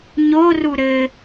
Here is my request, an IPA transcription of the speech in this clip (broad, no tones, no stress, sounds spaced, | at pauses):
ɲ o r u ɾ ɘ